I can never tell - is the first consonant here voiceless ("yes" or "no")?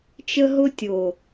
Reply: yes